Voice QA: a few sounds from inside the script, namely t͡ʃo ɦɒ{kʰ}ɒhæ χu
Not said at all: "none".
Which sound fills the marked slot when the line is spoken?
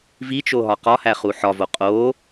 q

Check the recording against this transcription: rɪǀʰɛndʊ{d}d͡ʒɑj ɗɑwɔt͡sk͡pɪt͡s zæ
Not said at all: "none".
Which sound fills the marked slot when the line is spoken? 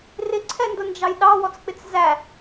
n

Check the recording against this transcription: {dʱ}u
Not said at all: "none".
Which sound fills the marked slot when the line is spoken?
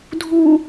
dʱ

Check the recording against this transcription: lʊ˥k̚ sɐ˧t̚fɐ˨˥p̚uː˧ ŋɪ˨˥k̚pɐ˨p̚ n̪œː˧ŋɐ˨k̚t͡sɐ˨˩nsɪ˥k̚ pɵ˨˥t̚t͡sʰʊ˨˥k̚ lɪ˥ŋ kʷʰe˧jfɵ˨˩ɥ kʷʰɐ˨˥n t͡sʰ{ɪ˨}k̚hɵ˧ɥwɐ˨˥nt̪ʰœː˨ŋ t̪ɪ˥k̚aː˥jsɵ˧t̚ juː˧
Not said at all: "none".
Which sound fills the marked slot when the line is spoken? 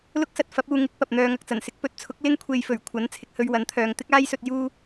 ɪ˨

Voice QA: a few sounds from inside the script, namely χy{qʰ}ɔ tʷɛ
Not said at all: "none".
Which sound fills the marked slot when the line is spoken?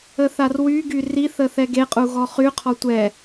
qʰ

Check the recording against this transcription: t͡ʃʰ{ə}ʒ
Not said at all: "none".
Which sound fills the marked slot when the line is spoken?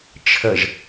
ə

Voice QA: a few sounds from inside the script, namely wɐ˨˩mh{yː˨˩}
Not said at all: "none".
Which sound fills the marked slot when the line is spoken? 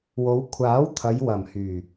yː˨˩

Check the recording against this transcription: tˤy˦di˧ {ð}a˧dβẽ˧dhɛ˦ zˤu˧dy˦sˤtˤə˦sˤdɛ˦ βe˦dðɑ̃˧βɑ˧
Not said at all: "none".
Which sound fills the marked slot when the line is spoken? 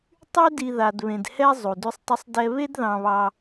ð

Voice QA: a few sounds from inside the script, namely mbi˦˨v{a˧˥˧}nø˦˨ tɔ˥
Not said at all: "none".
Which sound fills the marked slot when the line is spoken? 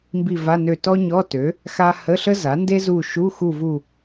a˧˥˧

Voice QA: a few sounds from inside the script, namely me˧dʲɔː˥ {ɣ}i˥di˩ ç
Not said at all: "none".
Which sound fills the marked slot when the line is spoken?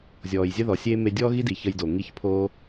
ɣ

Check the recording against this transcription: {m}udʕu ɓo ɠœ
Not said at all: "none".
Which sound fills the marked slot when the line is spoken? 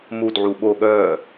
m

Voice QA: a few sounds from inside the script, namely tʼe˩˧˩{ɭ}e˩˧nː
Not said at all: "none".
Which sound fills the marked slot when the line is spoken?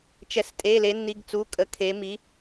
l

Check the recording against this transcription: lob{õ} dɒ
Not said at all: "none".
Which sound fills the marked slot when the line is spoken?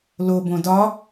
õ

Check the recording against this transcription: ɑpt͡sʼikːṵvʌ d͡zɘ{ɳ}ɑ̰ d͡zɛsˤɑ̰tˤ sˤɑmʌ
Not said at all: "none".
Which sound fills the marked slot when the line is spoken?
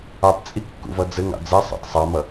ŋ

